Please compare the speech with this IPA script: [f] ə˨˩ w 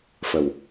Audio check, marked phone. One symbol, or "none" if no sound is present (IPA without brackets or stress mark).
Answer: f